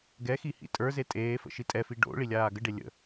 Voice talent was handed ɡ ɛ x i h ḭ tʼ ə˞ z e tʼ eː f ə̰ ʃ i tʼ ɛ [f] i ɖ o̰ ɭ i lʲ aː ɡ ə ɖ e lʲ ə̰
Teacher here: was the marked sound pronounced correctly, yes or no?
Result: yes